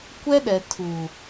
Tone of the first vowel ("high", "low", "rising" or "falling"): high